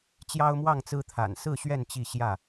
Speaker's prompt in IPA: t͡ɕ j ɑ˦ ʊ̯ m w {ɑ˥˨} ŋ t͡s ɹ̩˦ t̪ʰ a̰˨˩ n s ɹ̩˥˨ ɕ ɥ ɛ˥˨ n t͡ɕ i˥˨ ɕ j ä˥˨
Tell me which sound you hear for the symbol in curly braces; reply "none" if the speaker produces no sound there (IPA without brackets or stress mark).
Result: ɑ˥˨